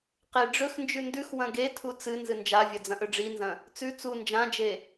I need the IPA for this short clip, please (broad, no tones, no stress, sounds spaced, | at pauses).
q e ɖ͡ʐ ɵ x n d͡ʒ ʉ n d ʉ x w ɐ̃ ɡ e tʰ u t͡s ɨ n z ɨ n d͡ʒ a vʲ ɐ d͡z ɐ̃ ʔ ɵ ɖ͡ʐ i n z ɐ̃ | t͡s ʉ t͡s u n d͡ʒ ã d͡ʒ e